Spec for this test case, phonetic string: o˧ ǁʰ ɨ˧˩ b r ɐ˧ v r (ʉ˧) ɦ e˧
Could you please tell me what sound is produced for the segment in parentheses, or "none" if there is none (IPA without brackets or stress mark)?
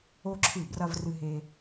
ɨ˧